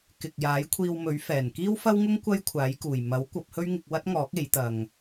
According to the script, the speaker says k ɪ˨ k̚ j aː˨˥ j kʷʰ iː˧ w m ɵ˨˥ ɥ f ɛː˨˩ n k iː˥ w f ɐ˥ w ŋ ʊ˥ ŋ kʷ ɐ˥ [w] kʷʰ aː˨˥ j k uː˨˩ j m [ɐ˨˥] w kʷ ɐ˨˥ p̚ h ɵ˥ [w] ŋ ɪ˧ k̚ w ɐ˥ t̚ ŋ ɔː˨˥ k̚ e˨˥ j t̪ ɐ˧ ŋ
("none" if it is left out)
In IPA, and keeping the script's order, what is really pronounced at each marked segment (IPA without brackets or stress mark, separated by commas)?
j, ɐ˨˥, ɥ